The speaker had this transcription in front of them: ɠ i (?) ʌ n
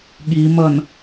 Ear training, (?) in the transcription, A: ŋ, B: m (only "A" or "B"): B